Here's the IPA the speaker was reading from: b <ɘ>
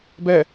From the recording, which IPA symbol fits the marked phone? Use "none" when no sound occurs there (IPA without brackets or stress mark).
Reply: ɛ